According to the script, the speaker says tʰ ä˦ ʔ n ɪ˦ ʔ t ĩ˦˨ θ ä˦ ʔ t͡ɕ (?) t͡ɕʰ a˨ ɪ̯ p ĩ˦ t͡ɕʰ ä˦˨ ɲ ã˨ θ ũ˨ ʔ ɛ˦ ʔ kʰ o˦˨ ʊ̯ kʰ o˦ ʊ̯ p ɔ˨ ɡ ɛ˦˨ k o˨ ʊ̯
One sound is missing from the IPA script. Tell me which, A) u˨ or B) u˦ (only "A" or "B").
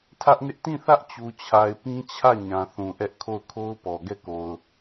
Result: A